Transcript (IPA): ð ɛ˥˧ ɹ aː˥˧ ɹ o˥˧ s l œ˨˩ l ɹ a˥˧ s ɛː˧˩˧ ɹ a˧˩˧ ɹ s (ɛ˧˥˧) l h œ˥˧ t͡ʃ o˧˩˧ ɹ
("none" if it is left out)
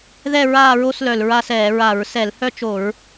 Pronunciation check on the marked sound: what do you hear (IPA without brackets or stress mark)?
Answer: ɛ˧˩˧